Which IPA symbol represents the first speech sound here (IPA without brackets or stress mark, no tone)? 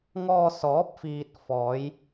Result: ŋ